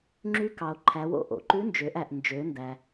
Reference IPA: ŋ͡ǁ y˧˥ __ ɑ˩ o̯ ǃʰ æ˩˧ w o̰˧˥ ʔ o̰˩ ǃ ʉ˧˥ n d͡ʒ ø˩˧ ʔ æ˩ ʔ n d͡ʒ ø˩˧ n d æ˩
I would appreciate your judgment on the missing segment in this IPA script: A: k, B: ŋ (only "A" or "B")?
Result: A